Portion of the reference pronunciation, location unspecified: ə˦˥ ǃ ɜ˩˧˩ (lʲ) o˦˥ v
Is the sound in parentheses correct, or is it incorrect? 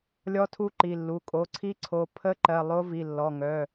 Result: incorrect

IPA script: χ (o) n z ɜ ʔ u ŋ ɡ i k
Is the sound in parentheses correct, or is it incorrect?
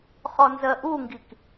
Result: incorrect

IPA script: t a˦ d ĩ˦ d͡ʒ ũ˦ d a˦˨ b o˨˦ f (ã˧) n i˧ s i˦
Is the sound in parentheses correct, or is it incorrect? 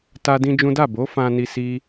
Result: correct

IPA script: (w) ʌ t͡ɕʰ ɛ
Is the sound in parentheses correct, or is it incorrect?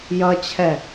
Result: incorrect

